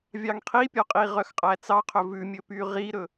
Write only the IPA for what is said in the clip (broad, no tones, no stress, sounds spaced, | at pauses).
vʲ ɑ ŋ qʰ i pʲ ɔ qʼ i ʁ œ x qʼ æ t͡s ɑ qʰ ɵ v ʉ mʲ ɵ p y ʁ i ɾ ɵ